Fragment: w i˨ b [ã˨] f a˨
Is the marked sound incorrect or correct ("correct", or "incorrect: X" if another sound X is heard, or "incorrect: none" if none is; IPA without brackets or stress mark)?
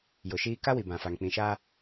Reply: correct